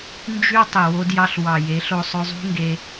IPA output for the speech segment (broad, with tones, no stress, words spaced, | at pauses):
nd͡ʒy˦ tˤi˨wo˦djɑ˦ɬ wɑ˨je˨˦ɬo˧ sˤø˧zˤṳ˦ŋɡe˧